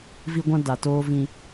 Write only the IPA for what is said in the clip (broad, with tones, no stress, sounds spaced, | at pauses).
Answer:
v i˦ ɡʷ ã˦ d a˨ t oː˦ v ĩ˦